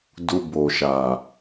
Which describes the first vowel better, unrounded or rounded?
rounded